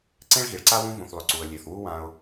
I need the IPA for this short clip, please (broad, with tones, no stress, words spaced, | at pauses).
ǀẽ˥ɭɣi˩ɭǀa˥ wũ˥ vũ˩θlˠʏ˩ ǀu˩ə̯lʲe˩θwu˥ wã˧ʊ̯